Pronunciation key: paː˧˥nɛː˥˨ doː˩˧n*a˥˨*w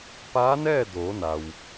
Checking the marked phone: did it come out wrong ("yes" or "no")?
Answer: yes